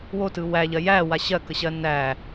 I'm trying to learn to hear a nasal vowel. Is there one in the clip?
no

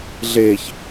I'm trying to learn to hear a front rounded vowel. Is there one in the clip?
no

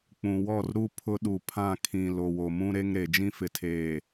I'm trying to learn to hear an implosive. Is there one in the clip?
yes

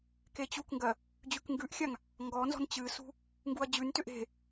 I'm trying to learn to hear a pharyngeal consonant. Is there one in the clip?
no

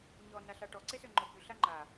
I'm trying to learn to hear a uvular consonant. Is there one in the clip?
no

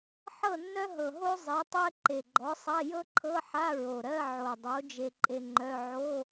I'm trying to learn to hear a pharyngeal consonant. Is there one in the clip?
yes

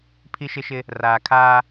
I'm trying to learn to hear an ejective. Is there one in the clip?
no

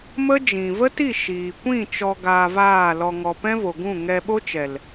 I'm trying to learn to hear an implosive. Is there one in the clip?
yes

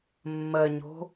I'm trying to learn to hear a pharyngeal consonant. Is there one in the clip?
no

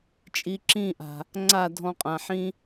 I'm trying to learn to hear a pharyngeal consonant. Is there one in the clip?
yes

